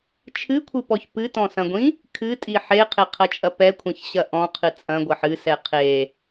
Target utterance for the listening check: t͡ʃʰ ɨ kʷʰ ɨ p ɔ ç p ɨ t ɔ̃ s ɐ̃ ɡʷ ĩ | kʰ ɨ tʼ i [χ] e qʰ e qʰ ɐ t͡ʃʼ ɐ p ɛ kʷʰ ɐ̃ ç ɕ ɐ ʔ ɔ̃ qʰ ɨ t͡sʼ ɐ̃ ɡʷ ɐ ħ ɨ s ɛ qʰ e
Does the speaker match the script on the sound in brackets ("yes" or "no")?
no